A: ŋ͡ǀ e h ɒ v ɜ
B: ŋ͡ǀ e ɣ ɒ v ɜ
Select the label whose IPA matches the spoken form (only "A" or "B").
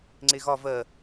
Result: B